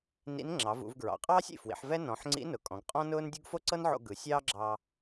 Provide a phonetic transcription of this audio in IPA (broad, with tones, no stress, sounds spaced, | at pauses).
n ḭ˧˥ n ŋ͡ǁ ɑ˩˧ v ṵ˩˧ v ɡ ɹ ɑ̰˩˧ qʼ ɑː˥ sʲ ḭ˩ f w ḭ˩˧ ħ v ɛ˥ n ɔ̃˩˧ ħ ŋ͡ǀ ḭ˧˥ n ʊ˩ kʼ ɔ̃˩˧ ɡ qʼ ɔ̃˥ n ʊː˥ n dʲ u˥ ɡ f o˥ ǀ ɤ˥ n ʕ o̰˧ ɡ ɯ˩˧ sʲ ɑː˥ ɡ͡ǁ ɑː˧